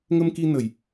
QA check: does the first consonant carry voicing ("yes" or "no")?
yes